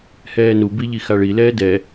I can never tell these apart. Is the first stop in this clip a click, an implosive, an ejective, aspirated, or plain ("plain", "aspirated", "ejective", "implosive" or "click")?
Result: plain